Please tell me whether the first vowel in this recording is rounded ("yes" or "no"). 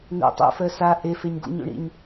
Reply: yes